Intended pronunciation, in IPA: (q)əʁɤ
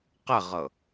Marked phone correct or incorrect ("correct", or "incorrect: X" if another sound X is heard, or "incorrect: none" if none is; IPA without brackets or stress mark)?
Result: correct